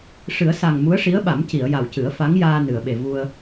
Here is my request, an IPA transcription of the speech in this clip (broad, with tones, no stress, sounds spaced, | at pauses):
ʂ ɨ˨˩˦ ə̯ s a˨˩ ŋ m u˧˥ ə̯ ʂ i˧˥ ə̯ ɓ a˨˩˦ m c i˨˩˨ ə̯ j a˨˩ w c ɨ˨˩˦ ə̯ f a˧˥ ŋ j aː˧ n ɨ˨˩˨ ə̯ ɓ e˨˩ v u˧ ə̯